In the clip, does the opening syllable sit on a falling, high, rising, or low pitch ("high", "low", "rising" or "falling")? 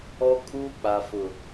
high